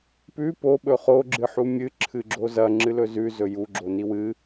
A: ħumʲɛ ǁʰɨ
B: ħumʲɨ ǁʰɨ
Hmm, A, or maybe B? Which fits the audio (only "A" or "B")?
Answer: B